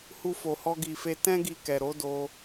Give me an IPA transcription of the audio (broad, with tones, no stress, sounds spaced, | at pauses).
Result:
h u˧ f o˨ h ɔ˧ ɡ i˨ f e˧ t ɛ̃˦ ɡ i˧ k ɛ˨ ɾ o˨˦ d o˧